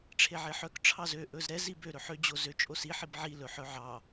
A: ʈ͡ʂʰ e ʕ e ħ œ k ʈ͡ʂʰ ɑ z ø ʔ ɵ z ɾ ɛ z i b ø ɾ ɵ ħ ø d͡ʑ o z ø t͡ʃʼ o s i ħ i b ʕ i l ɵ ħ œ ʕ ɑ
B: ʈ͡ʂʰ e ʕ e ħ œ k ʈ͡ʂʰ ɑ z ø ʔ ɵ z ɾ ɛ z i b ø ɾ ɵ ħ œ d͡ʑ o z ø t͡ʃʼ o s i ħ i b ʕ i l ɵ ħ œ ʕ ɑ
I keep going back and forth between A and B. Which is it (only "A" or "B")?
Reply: A